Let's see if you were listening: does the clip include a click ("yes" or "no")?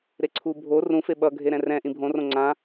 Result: yes